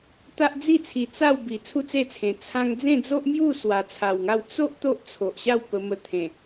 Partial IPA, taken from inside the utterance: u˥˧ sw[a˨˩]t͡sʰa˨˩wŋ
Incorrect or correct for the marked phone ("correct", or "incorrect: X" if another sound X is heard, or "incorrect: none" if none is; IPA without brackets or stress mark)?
correct